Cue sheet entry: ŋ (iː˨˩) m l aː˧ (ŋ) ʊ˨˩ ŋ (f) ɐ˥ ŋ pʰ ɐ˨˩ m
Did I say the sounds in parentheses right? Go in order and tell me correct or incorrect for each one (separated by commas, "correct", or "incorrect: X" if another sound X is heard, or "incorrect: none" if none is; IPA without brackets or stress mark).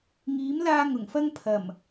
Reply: incorrect: iː˨˥, correct, correct